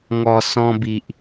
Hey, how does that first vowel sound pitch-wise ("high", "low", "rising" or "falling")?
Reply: low